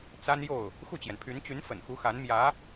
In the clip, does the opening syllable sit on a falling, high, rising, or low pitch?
high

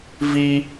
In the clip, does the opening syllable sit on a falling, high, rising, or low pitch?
high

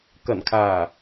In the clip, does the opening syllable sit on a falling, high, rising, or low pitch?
low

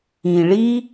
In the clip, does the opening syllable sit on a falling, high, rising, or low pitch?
low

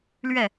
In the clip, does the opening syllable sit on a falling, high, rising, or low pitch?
falling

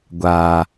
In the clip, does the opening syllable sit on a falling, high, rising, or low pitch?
low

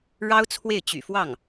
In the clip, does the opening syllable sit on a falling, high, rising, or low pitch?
high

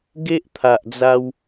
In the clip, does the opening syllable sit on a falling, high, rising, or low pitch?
high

